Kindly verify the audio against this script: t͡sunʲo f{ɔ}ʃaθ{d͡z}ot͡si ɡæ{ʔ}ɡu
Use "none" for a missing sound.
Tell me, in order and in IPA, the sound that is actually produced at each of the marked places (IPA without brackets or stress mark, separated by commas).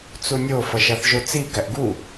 ʌ, ʒ, ʔ